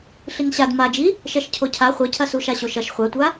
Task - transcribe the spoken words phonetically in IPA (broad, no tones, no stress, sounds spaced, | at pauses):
ɬ i ŋ ɕ a d m a d͡ʒ i | ʃ ɛ ʃ cʰ o cʰ a χʷ ɐ cʰ ɐ s u ʃ a ɕ o ʃ ɐ ʃ χʷ a tʷ a